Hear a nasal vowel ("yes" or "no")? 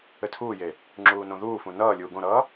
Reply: yes